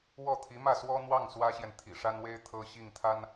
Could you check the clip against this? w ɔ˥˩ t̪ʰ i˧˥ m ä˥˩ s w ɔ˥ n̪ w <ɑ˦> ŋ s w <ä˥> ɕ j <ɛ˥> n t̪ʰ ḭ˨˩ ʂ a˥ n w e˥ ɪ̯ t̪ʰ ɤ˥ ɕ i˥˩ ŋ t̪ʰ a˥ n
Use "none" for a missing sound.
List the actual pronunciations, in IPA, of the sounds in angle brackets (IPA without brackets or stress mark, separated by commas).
ɑ˥˩, ä˥, ɛ˨